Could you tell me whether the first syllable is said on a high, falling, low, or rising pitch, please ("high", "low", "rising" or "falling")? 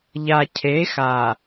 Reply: low